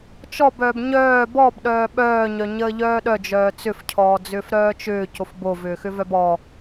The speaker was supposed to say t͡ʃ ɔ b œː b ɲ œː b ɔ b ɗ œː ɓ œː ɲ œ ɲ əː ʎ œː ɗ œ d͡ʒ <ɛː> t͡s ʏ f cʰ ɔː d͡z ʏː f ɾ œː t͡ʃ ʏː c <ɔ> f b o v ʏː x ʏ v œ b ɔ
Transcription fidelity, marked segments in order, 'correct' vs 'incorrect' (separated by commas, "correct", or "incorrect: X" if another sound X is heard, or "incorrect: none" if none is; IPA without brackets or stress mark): incorrect: œː, incorrect: o